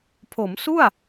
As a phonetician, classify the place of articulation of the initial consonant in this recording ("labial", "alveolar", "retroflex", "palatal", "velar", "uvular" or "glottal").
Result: labial